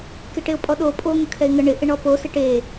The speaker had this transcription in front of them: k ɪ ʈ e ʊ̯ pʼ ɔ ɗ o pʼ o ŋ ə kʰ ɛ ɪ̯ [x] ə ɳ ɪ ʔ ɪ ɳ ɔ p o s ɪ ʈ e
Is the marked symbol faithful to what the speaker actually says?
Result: no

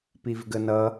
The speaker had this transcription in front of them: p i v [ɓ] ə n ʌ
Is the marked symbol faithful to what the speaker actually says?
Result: no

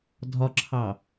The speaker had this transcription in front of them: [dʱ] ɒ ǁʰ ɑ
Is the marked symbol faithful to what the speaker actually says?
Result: yes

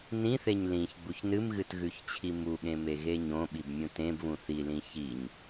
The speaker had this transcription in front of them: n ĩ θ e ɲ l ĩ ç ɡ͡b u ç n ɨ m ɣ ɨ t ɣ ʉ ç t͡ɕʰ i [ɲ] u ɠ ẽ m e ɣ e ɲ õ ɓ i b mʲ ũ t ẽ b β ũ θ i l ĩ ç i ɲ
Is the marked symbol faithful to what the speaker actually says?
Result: no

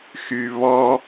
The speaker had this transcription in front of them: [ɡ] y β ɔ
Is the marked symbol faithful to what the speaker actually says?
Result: no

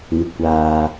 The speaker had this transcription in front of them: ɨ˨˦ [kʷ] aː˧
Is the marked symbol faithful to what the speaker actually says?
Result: yes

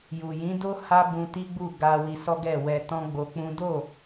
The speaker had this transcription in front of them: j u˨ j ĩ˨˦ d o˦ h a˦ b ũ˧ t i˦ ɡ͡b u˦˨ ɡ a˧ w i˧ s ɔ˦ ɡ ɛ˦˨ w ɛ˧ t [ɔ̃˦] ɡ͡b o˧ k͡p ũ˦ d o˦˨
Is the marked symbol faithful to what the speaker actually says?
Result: yes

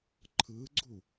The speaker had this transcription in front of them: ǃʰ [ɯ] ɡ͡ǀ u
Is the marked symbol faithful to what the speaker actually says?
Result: yes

